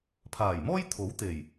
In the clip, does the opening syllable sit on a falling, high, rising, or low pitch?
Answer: low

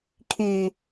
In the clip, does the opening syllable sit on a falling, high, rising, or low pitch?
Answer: low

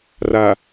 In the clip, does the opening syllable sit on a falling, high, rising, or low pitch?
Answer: low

